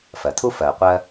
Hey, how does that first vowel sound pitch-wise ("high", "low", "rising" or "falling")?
low